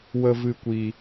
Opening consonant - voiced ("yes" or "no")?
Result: yes